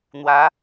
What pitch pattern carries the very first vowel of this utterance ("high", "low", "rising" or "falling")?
rising